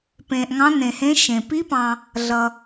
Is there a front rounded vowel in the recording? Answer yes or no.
no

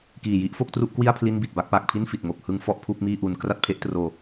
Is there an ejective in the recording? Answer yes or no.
no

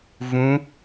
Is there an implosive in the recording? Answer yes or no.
no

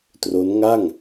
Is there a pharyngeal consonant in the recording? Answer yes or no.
no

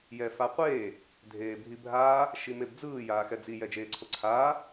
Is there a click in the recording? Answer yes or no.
yes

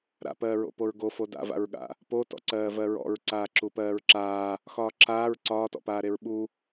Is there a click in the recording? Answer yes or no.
yes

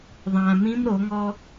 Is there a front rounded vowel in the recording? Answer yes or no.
no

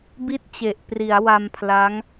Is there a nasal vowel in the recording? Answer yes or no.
no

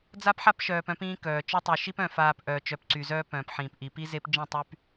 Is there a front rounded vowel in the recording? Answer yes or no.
yes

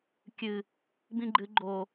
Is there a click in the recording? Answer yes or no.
yes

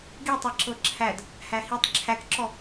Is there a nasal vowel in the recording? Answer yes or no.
no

